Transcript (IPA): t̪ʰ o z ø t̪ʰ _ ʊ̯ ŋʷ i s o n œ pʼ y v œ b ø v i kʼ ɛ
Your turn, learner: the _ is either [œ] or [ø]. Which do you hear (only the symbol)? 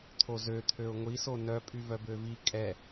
ø